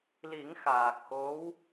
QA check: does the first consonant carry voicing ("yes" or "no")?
yes